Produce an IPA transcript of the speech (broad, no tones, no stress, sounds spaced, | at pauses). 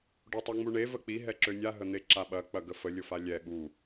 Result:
ɖ o tˤ e ŋ͡m u ɳ e v ə k͡p i ɦ ɛ ǁ ø nʲ a ɦ ə n̪ e ǁ a ɓ ɐ k͡p ɐ ɡ ə f ə lʲ ʊ f a lʲ ɛ ɠ u